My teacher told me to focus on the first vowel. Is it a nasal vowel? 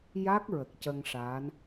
no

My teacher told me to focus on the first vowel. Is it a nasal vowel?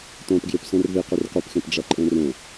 yes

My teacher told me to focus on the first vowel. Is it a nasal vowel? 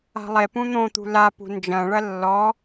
no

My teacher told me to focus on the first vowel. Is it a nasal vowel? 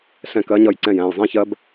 yes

